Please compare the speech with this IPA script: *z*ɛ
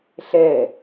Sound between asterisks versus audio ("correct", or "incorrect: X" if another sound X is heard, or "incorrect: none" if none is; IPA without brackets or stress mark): incorrect: ɬ